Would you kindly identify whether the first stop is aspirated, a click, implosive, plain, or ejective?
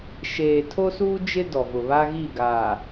aspirated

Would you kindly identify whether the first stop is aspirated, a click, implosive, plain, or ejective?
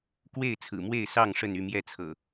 plain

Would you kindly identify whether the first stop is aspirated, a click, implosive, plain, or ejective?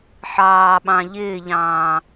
implosive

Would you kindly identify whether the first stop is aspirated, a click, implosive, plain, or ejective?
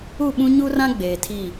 implosive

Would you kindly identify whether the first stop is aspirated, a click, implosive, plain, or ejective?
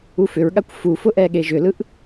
implosive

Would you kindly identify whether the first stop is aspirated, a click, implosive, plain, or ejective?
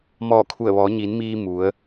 aspirated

